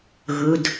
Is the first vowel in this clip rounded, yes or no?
yes